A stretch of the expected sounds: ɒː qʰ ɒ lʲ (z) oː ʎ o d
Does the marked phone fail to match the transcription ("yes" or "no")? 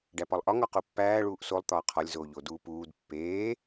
no